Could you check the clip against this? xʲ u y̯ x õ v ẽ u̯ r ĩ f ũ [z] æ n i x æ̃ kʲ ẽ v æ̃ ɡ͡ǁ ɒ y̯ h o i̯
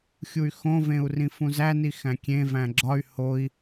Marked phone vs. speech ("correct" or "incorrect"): correct